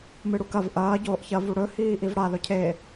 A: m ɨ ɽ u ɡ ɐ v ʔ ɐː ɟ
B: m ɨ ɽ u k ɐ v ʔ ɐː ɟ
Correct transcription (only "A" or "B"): B